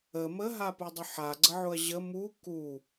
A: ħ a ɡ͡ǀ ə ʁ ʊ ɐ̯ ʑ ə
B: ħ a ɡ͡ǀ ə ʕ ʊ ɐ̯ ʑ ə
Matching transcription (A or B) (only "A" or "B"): B